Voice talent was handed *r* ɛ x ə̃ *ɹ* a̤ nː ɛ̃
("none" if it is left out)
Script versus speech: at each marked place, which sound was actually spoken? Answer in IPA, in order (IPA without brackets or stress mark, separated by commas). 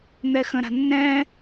n̪, ɾ